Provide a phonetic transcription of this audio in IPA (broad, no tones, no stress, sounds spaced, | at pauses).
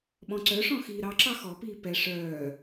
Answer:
ɓ ɔ̃ ǀ œ ʂ ɔ̃ x iː ɾ ɑ ǁ ɑ x ɔ p iː p ɛ ʂ œː